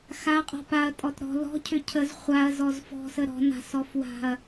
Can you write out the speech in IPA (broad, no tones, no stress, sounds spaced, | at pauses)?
x a qʼ ɔ̤ p a ɐ̯ tʼ ɔ t ɾ ɔ̤ l ɔ̤ cʰ ʏ cʰ ə z χʷ a ɐ̯ z ɔ z f ɔ̤ s ə ɾ ɔ̤ n a̤ s ɔ f w a̤ ɐ̯